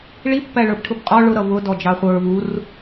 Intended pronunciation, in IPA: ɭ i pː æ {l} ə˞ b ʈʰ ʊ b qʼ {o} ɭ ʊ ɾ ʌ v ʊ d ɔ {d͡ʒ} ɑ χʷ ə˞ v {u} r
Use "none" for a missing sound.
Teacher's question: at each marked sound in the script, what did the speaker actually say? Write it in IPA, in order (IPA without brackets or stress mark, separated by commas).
ɭ, ɔ, d͡ʒ, u